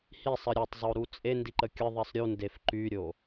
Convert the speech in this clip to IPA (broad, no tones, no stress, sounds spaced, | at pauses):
h i sˤ ə ɾʲ o tˤ zˤ o ɾ u t͡sʼ e n d i ǃ ə kʲ ə ðˤ i sˤ ɾʲ u n d e f ǃ y ɾʲ o